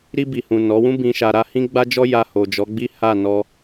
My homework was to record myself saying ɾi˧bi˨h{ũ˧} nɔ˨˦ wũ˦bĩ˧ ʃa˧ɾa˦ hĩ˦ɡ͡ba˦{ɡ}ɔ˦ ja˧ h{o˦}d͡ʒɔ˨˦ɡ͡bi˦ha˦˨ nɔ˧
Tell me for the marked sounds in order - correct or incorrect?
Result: incorrect: ũ˨, incorrect: d͡ʒ, incorrect: o˨

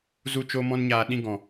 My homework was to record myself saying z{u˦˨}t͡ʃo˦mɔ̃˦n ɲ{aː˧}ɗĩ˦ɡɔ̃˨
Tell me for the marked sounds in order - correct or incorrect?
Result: correct, correct

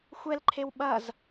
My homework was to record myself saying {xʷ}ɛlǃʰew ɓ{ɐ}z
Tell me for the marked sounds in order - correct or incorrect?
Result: correct, correct

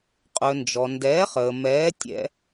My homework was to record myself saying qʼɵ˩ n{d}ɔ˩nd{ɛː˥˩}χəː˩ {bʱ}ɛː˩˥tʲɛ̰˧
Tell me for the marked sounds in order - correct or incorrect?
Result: incorrect: d͡ʒ, incorrect: ɛː˩˥, incorrect: m

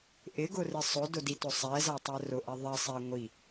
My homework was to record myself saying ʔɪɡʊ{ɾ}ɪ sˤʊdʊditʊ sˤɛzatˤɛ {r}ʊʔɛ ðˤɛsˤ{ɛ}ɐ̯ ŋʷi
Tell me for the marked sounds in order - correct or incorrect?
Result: incorrect: r, correct, correct

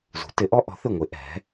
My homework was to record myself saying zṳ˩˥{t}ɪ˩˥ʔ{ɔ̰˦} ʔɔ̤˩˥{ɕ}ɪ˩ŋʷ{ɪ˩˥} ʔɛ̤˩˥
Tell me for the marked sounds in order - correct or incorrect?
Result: correct, incorrect: ɔ˦, incorrect: θ, correct

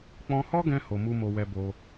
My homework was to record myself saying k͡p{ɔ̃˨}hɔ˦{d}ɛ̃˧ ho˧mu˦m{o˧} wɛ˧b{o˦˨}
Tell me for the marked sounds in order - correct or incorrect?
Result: incorrect: ɔ̃˧, incorrect: ɡ, correct, incorrect: o˧

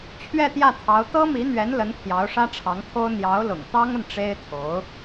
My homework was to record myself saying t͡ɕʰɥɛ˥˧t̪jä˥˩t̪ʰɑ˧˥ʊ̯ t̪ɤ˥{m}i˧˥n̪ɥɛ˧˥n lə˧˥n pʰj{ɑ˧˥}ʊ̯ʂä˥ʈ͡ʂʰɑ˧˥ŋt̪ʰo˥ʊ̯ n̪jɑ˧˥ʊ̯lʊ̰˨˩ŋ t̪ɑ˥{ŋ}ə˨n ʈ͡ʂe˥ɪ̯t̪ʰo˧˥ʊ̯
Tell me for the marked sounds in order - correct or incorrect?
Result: correct, correct, correct

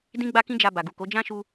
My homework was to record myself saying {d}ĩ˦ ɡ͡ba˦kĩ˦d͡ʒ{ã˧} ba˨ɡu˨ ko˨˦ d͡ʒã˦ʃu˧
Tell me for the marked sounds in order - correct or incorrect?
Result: correct, incorrect: a˧

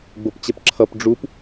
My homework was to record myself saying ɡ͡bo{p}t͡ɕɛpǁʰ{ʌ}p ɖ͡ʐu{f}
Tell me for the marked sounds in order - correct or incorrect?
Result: correct, correct, incorrect: p

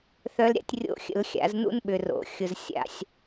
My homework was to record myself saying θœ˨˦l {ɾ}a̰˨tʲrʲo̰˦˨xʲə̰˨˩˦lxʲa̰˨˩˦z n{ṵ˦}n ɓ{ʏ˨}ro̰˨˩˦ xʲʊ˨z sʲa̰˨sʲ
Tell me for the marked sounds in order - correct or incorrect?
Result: incorrect: ɾʲ, correct, correct

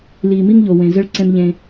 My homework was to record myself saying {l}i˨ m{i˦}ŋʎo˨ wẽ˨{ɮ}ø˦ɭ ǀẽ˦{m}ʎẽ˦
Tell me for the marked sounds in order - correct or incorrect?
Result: correct, correct, incorrect: z, correct

